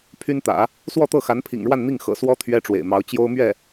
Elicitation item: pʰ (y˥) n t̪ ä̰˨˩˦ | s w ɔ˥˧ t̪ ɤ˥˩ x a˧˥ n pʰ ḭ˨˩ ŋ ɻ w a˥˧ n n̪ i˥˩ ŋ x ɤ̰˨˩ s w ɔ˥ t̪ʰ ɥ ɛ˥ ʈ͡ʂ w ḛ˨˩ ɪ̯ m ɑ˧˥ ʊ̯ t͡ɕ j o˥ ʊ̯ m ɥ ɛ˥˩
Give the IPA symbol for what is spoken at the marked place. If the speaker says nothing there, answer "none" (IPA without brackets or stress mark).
y˥